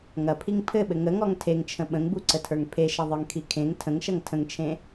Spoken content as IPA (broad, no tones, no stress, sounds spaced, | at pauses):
ŋ ɐ pʰ i ŋ pʰ ɘ ɓ ɘ ŋ ə ŋ ɔ ŋ tʰ e ŋ t͡ʃʰ ə̃ ɓ ə̃ ŋ b u ǀ ə tʰ ə˞ ŋ pʰ e ʃ ɐ ðˤ ə˞ ŋ kʰ i kʰ ẽ ŋ tʰ ə̃ ŋ ʃ ɐ ŋ tʰ ə̃ ŋ t͡ʃʰ ẽ